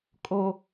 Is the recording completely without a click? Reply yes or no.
yes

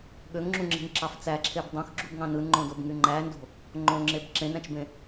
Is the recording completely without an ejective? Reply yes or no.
yes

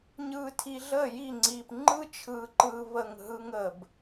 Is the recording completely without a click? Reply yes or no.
no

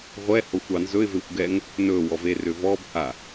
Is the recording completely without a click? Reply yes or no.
yes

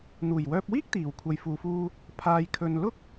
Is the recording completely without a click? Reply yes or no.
yes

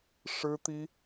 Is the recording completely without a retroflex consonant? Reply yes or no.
no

